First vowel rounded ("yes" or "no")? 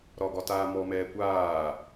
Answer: yes